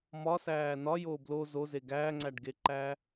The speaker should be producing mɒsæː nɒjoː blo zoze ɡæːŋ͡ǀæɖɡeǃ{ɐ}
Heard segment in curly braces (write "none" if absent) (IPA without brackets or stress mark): æ